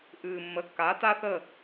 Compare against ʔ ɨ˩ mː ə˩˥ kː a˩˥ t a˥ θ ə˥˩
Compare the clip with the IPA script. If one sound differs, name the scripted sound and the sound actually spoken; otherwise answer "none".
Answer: none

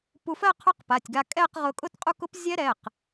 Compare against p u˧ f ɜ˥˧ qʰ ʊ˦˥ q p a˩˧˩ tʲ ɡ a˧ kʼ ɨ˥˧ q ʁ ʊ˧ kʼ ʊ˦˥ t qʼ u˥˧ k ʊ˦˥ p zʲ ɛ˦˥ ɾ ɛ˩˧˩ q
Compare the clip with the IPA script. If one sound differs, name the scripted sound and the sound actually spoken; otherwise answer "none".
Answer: ɨ˥˧ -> ɛ˥˧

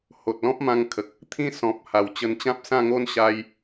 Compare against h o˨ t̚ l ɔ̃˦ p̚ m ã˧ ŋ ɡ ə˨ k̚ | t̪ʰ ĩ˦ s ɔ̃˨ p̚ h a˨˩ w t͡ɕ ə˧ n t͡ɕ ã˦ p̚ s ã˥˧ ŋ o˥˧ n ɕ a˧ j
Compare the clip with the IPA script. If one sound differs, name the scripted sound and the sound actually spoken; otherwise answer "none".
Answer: ɡ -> kʰ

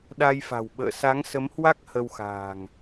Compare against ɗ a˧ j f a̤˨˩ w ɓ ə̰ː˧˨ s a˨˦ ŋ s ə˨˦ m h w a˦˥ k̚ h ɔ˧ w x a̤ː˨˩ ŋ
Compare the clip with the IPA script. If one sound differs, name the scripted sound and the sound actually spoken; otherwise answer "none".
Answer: ɔ˧ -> ə˧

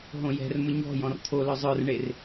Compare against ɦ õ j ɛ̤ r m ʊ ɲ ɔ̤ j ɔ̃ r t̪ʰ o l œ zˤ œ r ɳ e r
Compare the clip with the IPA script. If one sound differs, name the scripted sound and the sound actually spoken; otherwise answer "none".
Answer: none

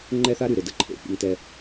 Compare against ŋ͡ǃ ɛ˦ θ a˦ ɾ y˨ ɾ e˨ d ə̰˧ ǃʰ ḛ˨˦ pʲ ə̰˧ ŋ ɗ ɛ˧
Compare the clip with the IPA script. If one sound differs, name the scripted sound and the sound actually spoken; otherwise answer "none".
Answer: ɗ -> t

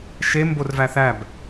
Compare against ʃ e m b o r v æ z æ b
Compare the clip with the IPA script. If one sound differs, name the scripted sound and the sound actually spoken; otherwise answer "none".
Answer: z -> θ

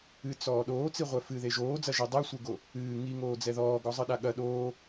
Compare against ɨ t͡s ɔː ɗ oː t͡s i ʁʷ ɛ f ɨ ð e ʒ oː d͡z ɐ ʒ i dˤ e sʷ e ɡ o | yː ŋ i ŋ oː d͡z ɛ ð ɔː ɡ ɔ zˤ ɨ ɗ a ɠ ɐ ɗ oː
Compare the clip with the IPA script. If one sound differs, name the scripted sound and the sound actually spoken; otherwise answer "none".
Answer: yː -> ɨː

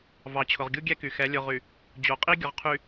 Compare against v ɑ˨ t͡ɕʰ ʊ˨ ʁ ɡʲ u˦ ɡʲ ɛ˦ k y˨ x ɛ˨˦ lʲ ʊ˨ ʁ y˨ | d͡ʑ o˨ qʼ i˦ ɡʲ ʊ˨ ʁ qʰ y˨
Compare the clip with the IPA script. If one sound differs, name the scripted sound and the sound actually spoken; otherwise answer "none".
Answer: none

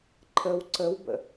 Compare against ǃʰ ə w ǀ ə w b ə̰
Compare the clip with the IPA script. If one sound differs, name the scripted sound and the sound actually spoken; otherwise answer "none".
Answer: none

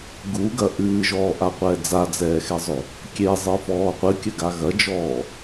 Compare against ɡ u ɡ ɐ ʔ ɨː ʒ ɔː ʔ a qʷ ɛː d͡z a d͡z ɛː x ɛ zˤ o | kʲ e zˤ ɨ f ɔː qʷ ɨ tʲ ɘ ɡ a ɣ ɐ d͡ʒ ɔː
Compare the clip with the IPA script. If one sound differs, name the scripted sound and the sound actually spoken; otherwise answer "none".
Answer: tʲ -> kʲ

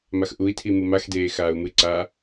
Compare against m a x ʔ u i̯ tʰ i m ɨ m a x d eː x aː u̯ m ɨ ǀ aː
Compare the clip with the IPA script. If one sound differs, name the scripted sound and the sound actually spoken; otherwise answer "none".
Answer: none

